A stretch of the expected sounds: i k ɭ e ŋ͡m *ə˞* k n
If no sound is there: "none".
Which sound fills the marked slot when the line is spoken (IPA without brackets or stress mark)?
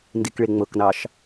ɤ